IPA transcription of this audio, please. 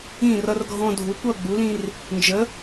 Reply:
ĩ˥˨ r ʌ˦ r ɡʱ ɔ̃˦ dʱ u˨˥ kʷ ʌ˥˨ ɡ͡b u˨˥ l ĩ˦ r | n d͡ʒ ə˨˥

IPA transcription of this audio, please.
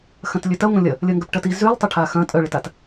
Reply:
x ɐ̃ t lʲ ø t ɐ ŋʷ ɐ̃ lʲ ɐ | lʲ ɐ ŋ ɡ œ p ʈ ɐ t i z y lˠ tˤ ɪ ʈʰ a x ɐ̃ tʼ œ ɭ ɪ t a t

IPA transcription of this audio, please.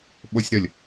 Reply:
ɓ o sʲ ɾ ə lʲ

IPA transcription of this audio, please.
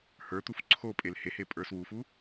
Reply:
h ə˞ t̪ u f ǀʰ o pʼ e l h e h e pʼ ə˞ s w u f u

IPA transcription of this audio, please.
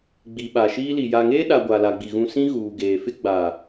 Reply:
ɡ͡b i˨ ɓ a˨ ʃ iː˦ l i˨ j a˨ ŋ eː˦ ɗ a˨ ɡʷ a˨ l a˨ ɡ͡b i˨ ɣ ũ˨ s ĩ˦ ɣ uː˨ ɡ eː˨ f ɪ˦ ɡ͡b a˨

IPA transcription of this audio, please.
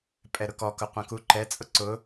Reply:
pʼ ɛ ɾ ʊ k ɔ k ʊ qʷ ɛ̃ k u ǃ ɛ t͡sʼ ʊ ǀ ʊ

